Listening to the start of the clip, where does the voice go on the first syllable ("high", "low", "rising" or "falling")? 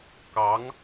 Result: rising